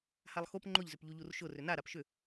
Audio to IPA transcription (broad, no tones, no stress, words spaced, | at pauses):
halˠxop ŋ͡ǃʊʎzʏp ʎuʎurʃʊ rʏna ɾapʃʏ